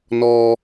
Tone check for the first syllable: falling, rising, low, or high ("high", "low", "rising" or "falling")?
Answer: high